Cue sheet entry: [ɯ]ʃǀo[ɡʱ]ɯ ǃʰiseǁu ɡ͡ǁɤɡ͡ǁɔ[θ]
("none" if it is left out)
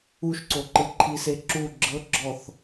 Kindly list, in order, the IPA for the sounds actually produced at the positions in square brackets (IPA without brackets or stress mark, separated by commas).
u, ǃ, θ